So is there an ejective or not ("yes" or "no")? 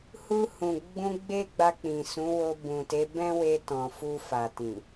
no